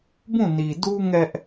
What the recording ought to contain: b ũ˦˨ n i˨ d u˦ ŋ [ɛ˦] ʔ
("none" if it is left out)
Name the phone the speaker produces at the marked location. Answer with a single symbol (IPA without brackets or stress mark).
ɛ˦